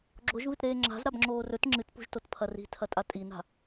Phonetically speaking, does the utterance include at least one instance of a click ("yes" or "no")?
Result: yes